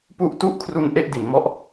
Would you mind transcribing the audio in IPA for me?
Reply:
p u˥˩ ʔ t u˥˩ ʔ kʰ r u˧ n ʔ e˥˩ ʔ d i˩˦ n m ɔ˦˥ ʔ

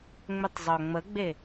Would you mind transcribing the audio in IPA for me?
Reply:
ŋ͡m ʏ tˤ zˤ œ ŋ͡m ə ɡ͡b e

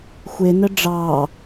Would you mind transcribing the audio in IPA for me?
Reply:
xʷ e n ə ɖ͡ʐ ɑ

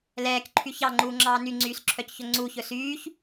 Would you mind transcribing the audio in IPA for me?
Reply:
l ɛː k ǃʰ y ç ɑ ŋ͡ǃ uː ŋ͡ǁ ɑː n y ŋ͡ǀ yː s ǁʰ œ c ç ɵ ŋ͡ǀ u ç ɵ s yː ç

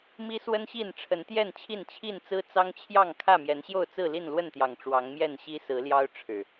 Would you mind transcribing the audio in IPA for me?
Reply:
m i˦ s w ə˦ n ɕ i˥˨ n ʈ͡ʂʰ ə˨˦ n t̪ j ɛ˥˨ n t͡ɕʰ i˥˨ n t͡ɕʰ i˥˨ n t͡s ɹ̩˦ t͡s ɑ˦ ŋ t͡ɕʰ j ɑ˥˨ ŋ kʰ ä˥˨ m j ɛ˨˦ n ɕ j o˥˨ ʊ̯ t͡s ɹ̩˥˨ l i˥˨ n l w ə˥˨ n t̪ j ɑ˨˩ ŋ ʈ͡ʂ w ɑ˨˦ ŋ m j ɛ˥˨ n ɕ i˦ s ɹ̩˨˦ l j ɑ˦ ʊ̯ ʈ͡ʂʰ ɻ̩˨˩

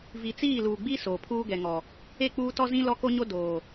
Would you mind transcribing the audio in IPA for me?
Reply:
v i˨ t͡s iː˦˨ l uː˨ ɡ͡b i˦ s oː˨ pʰ uː˦ ɡ ɛ˨ ŋ ɔ˨ | e˦˨ k͡p uː˦ t ɔ˦ z ĩ˦ l ɔ˦ k o˦ ɲ o˦ d oː˨

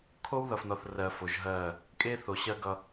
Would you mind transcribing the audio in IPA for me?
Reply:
kʰ o˦ w ð ʌ˨ f n ɔ˨ θ r ɜ˨ f o˨ ʒ ɦ ɜ˦˨ | kʼ e˦ θ o˨ ɕ ɜ˦ ɡ ʌ˦

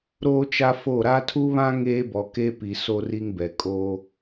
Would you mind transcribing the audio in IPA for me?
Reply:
ɾ oː˦ t͡ʃ a˦ f o˦˨ ɾ a˦ tʰ u˦ β ã˦ ŋ eː˦ b ɔ˨ k e˦ p i˨ s o˦ r i˦ ŋ b ɛ˨ kʼ oː˦

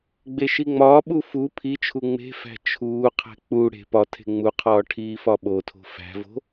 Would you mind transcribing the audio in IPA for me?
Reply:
ɡ͡b e ʃ i ŋ͡m ɒː ɓ u f u pʰ i t͡ʃʰ u ŋ͡m e̤ f æ̤ t͡ʃʰ uː qʰ æ̤ k͡p u ɽ e̤ p ɒ tʰ e̤ ŋ͡m u qʰ ɒː ʈʰ iː f ɒ ɓ o tʰ o̤ f æ̤ v o̤

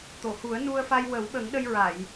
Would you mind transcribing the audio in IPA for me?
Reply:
t̪ o˨˩˨ h u˨˩˦ ə̯ n u˧ ə̯ f a˧ j w ə˨˩˦ w ɓ ə˨˩˦ ŋ ɗ ə˧ j ɹ a˨˩˨ j

